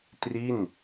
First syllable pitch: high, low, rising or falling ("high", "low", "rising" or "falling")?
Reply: falling